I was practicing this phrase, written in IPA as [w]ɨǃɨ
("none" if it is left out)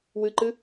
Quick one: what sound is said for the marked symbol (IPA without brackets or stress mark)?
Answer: w